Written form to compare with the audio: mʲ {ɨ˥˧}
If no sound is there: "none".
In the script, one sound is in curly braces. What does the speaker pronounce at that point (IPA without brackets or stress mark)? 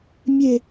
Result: e˥˧